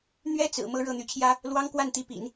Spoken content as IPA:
n̪ɥɛ˥t͡sɹ̩˨˩ mɤ˧˥ ɻɤ˥˩n̪y˧˥t͡ɕʰjä˥ | lwɑ˥ŋkwa˥˩nt̪i˧˥pḭ˨˩˦n

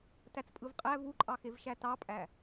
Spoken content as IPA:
tæt͡spʼɯvqʼæ vuǃʼɑxev ʃætɑpʼæ

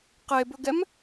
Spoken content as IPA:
qebɵɡɛm

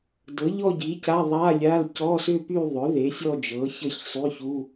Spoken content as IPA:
dɤ˩˥ʎɔ˥˧ɟi˩˥ ca˧˥˧ðˤa˧˥˧lʲa˧˥˧l cɔ˧˥˧sʏ˥˧py˥˧ðˤʏ˩˥ ðe˩˥sʲɔ˥˧d͡ʒɤ˩˥ çə˥˧çsˤy˧˥˧çu˧˥˧

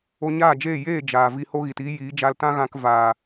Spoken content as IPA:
o˧ɲaː˦˨d͡ʒeː˦˨ jeː˦˨ d͡ʒaː˨vi˧ ho˦ɣi˨tiː˦jiː˨˦ d͡ʒa˧l tã˦ɣã˧k va˨

